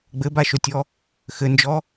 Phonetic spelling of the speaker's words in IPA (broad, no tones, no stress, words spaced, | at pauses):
ɡ͡bɘbaʃotʲɔ | xɘnd͡ʒɔ